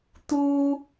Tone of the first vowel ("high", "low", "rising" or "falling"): high